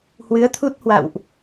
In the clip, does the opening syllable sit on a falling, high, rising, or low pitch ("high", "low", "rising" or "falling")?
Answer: rising